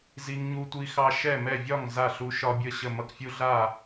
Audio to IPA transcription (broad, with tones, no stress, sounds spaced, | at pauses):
z i˦ ŋ ɲ u˦ tʷ i˦ x ɑ˦ ʃ ɛ˥˨ m ɛ˥˨ vʲ ɒ˥˨ ŋ z a˥˨ ɬ u˦ ʃ ɒ˦ bʲ ə˥˨ ɕ ə˥˨ m ʌ˦ k fʲ u˦ ɮ a˥˨